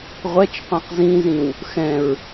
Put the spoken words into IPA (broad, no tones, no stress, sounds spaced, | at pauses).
ʁʷ ɛ t͡ʃ qʷ ɛ̃ q z ĩ z ĩ w | x ɛ̃ ɹ